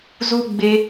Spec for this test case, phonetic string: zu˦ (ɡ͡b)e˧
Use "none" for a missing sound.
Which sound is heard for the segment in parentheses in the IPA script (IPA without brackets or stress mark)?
ɡ͡b